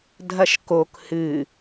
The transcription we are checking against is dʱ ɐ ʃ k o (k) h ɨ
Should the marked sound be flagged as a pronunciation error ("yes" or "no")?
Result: no